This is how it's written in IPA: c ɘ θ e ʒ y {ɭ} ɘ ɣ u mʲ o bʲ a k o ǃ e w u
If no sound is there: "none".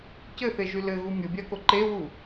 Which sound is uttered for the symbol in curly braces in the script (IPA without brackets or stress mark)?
l